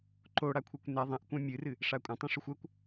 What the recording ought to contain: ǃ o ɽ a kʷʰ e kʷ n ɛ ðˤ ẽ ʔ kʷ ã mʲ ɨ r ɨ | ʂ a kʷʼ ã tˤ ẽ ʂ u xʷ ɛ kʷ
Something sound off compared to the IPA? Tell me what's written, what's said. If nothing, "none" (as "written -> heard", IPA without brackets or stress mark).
none